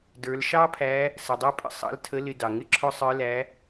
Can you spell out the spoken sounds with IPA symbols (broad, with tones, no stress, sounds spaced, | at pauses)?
d ə˞˩˧ l ʃ ɑ˥ pʰ æ˧˥ | s ə˩ dˤ æ˥ pʼ ə̰˧ sˤ ɑ̰˧˥ l tʰ ə˧˥ l ɪ˧ d ɑ˩ ŋ ɪ˥ ǁʰ ʊ˥ sˤ ə˞˧˥ l æ˧˥